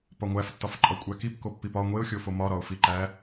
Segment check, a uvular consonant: absent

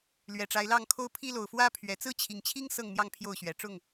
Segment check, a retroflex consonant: present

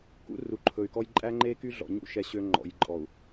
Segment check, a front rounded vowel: present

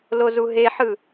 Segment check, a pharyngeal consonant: present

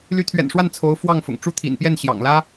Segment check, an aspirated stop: present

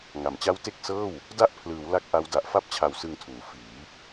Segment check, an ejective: absent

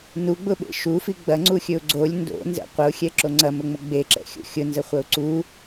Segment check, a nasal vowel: absent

